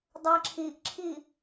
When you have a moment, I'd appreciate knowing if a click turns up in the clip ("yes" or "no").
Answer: yes